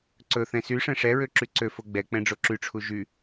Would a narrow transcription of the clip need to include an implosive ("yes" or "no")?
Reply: no